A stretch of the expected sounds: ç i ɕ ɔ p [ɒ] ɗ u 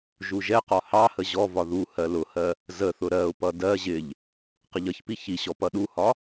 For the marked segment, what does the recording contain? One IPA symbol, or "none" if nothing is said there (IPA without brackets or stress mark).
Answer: ʌ